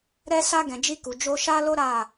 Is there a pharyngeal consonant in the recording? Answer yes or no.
no